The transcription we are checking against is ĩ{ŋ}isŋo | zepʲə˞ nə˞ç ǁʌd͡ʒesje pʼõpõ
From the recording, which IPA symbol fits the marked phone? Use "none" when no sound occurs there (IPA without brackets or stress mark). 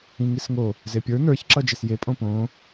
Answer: ŋ